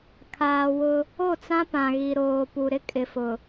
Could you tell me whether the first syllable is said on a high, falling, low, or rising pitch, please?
low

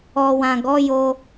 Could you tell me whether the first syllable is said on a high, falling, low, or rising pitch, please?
low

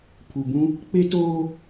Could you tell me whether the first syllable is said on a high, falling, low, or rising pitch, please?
low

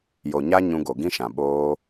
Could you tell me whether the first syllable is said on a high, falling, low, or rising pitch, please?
low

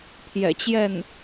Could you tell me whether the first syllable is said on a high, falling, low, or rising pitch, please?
low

